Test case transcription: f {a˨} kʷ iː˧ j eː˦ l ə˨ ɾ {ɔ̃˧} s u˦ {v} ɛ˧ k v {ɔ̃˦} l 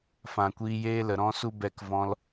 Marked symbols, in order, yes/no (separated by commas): no, no, no, no